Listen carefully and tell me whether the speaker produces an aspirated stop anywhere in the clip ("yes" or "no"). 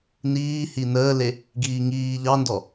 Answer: no